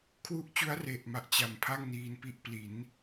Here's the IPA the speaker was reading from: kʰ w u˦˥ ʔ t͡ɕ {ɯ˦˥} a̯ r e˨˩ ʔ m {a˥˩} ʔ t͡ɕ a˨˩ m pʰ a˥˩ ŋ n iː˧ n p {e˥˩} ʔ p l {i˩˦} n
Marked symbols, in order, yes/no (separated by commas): no, no, no, yes